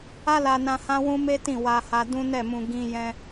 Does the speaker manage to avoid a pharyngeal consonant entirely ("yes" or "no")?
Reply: yes